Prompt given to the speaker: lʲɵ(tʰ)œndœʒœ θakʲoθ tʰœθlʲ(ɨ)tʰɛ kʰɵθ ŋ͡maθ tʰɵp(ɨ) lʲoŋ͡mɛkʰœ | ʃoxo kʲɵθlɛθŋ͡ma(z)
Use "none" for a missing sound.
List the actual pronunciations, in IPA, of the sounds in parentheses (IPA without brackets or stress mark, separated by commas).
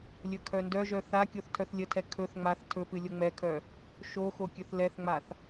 kʰ, ə, ɨ, θ